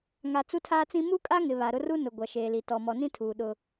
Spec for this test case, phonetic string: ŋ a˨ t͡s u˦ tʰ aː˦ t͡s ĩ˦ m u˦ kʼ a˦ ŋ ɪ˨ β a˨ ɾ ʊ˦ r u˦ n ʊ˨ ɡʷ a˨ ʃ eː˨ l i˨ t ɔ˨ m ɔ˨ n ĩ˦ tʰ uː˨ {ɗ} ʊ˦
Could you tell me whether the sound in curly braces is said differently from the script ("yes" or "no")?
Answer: no